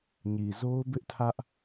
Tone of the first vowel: low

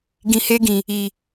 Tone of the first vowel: low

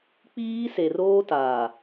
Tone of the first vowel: high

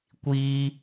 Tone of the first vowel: high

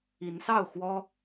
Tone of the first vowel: rising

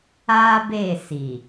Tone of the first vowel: high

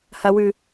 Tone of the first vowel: high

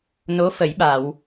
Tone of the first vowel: rising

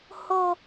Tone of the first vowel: high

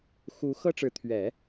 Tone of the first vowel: rising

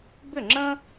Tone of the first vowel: falling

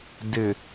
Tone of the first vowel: low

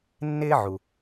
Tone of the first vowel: high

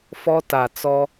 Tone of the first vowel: high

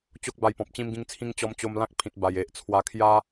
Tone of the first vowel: high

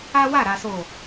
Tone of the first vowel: high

